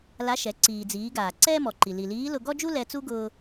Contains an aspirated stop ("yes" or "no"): no